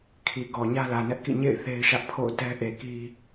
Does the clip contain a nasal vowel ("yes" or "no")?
no